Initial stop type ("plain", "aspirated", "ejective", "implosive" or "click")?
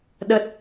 implosive